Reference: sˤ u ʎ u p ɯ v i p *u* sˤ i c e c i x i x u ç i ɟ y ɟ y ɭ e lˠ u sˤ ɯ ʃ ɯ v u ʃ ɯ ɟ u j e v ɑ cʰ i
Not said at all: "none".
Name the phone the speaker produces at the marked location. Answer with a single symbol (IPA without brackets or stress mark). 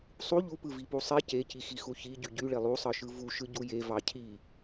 u